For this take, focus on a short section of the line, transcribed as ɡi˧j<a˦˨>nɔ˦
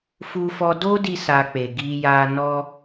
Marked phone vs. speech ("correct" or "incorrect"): incorrect